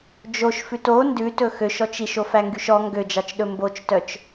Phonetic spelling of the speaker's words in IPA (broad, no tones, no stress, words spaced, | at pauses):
d͡ʒoʃfʉt o ndʉtɵ xøʃɔt͡ʃ iʃofæŋɡyʃ ɔ ŋɡød͡ʒɑt͡ʃɗɵ mbot͡ʃtœt͡ʃ